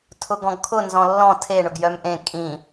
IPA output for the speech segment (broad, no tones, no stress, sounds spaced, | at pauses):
tʰ ʊ ɡ ɔ̃ ɡ kʰ ʊ n z ɔ̃ lː ɔ̃ tʰ e ɳ ʊ ɡ j œ m ʔ ẽ kʼ ĩ